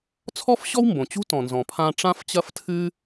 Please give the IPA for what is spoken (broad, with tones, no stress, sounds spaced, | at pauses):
t͡sʰ ɔ˥ f ɕ ɔ˥ w m b õ˩ t͡ɕ ṳ˥ t ɔ̃˩ n z ɔ̃˩ pʰ ã˧ ʈ͡ʂ ã˥ f t͡ɕ ɐ˥ f tʰ ɨ˥